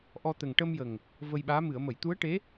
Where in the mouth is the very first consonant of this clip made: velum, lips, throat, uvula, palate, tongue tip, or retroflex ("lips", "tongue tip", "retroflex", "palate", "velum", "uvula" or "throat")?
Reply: throat